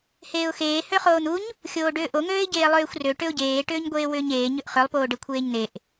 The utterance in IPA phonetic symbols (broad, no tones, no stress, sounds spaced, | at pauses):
h eː ʊ̯ x eː h ø χ oː n̪ u ɲ | xʲ oː ɖ ʏː ʔ o ŋ øː ɪ̯ ɟ eː lˠ øː xʷ r ø ʈ ʏ ʊ̯ ɟ eː ʈ ʏː ɲ ɡʷ eː w ʏː ɲ eː ɲ ʏ ʔ χ ʏ lˠ p oː ɖ ɘ kʷʰ eː ɲ n̪ e ʔ